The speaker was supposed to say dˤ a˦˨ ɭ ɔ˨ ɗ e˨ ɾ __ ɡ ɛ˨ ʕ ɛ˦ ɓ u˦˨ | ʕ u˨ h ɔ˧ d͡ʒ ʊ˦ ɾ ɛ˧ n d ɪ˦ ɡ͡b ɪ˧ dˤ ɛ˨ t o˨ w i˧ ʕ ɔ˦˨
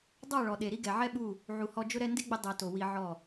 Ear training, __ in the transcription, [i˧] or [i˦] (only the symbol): i˦